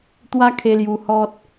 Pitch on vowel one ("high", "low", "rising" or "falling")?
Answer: high